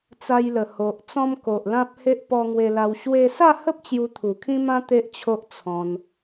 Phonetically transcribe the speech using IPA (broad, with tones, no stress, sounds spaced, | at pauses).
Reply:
t͡s a˧ j l ə˨˩ h o˨ ʔ t͡s ɔ̃˧ m k o˨ ʔ l ã˦ p̚ h e˦ ʔ p ɔ˧ ŋ w e˧ l a˧ w ɕ w e˧ s a˥˧ h ə˦ p̚ t͡ɕ j u˧ t̪ʰ u˨˩ kʰ ĩ˦ m ã˦ t̪ e˦ ʔ t͡ɕʰ o˦ ʔ t͡sʰ ɔ̃˧ n